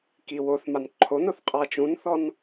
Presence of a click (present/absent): present